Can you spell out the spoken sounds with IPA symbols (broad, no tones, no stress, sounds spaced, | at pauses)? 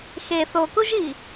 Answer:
x e θ o k u ʒ i